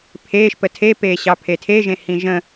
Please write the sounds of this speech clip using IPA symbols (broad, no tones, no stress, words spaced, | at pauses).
pʰeːʃpə tʰepeːɕɑ pʰetʰeʒẽhĩ ʒə̃